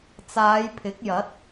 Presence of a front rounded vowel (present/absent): absent